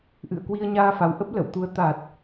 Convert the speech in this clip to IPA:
ʔ ɨ̰˧˨ ə̯ k w i˧ ə̯ ɲ aː˧ f a˨˦ w ʔ ə˦˥ p̚ l ə̰˧˨ w t̪ u˨˦ ə̯ t̪ a˨˩ t̚

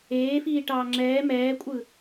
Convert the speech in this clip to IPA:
eː f iː ʈ ɑː ŋ͡ǁ ɛː m ɛː kʷʼ ɯ

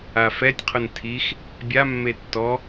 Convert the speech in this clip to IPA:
a f ɛ tʲ qʰ ʊ n tʰ i x | bʲ a mː e tː ɔ

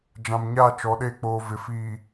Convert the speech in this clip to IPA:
d͡ʒ ã˨ m ɲ a˦˨ t͡ʃ ɔ˨˦ ɗ e˦˨ k͡p oː˨ v ɪ˨ f iː˨

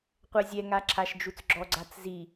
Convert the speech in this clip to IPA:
qʷ ɛ zʲ ɛ ŋ a ǁʰ a ʃ d͡ʒ u t͡s ɡ͡ǁ ɔ ɡ͡ǀ a t͡s z i

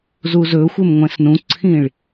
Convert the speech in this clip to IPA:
z u z ɵː xʷ e m ŋʷ ɛ̃ s n ũ ǀʰ ĩ ɭ

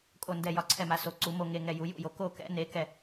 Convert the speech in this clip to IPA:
kʼ o˧˩ n d ɛ˧˩ j ɒ˧˩ ǀʰ ɛ˧˩ m a˩˧ s o˩˧ ǀ u˩˧ m o˧˩ ŋ e˧˩ ŋ ɛ˧˩ j u˩˧ j ṵ˧˩ j o˩˧ k o˧˩ k ɛ̰˩˧ n e˩˧ k ɛ˧˩

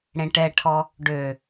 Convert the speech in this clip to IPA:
ɽ ẽ ʈ ɛ ʈʰ ɔ | ɖ ø

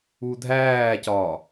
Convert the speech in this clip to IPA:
u dʱ æː c ɒː

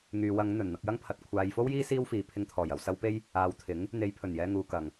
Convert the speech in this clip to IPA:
ŋ yː˨ w ɐ˨˧ ŋ n̪ ɵ˨˩ n n̪ ɐ˧ k̚ j ɐ˥ ŋ pʰ ɐ˨ t̚ kʷʰ aː˨ j f o˥ w j iː˥ s iː˥ w f iː˨ pʰ ɪ˧ ŋ t̪ʰ ɔː˨˩ j ɐ˨ w s ɐ˨˧ w p e˧ j | aː˨ w t̪ʰ ɪ˨˥ ŋ | n̪ e˨˧ j pʰ ɵ˨˩ n j ɛː˨ ŋ uː˨ k ɐ˨˩ ŋ

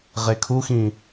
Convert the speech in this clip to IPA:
ʁ e kʰ u x ĩ

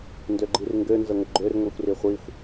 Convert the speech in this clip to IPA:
n d ø ɡ͡ǃ i r ŋ ɡ ø n z ə ŋʷ ə ɡ͡ǃ ø r ŋʷ i xʷ r i χʷ i xʷ

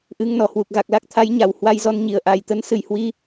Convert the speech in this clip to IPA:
ʔ ɨ˧ ŋ n ɔ˨˩ h w u˨˩ k̚ ɣ a˨˩ k̚ l a˦˥ k̚ t̪ʰ a˨˦ j ɲ a˨˩ w h w a˧ j z ɔ˧ n ɲ i˨˩ ə̯ ʔ a˨˩ j t̪ ə˨˦ n s ɨ˨˩ j h w i˧

